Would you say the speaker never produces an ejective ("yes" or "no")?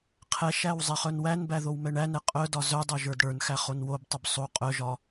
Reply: no